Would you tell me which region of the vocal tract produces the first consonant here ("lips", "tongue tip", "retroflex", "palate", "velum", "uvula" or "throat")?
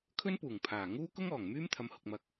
velum